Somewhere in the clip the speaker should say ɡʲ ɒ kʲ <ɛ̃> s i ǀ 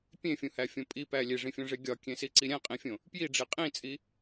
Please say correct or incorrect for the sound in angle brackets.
incorrect: ẽ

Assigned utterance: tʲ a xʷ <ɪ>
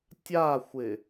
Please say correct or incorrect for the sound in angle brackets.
correct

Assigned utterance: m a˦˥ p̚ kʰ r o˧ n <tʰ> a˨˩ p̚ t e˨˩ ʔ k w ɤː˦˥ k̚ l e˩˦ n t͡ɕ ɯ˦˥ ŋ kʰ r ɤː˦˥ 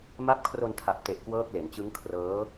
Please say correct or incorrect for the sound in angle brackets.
correct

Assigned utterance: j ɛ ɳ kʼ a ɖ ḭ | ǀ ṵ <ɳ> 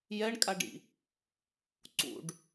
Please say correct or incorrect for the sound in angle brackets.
incorrect: ɖ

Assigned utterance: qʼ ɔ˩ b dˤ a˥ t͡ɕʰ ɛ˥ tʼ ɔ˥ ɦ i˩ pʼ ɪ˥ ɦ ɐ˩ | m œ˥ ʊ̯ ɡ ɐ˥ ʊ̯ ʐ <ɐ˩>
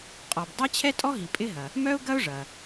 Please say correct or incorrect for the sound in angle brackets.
correct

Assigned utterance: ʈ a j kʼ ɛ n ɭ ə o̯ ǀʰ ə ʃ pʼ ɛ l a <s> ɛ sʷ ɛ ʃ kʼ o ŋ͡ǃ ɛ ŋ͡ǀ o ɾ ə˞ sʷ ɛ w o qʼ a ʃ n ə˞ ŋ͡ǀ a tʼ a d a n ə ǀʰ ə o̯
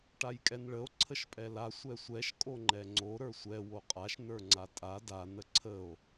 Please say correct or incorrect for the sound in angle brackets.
incorrect: sʷ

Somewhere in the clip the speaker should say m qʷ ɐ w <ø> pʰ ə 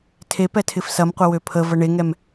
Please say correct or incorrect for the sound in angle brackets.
correct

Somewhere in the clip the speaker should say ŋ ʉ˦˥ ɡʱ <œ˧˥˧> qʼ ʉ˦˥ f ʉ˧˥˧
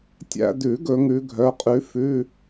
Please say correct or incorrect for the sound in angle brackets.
correct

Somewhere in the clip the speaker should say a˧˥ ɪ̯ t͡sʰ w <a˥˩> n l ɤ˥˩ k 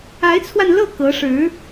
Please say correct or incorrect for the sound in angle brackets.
incorrect: a˧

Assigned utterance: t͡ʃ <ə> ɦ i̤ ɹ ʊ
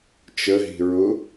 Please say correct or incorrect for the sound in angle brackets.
correct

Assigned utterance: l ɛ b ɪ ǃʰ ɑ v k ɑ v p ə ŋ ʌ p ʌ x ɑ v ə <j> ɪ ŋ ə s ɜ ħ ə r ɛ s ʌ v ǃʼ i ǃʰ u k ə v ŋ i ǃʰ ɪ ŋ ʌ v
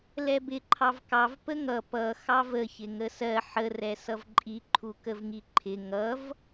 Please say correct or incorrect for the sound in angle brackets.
incorrect: ç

